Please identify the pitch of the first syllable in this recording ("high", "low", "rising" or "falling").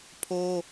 high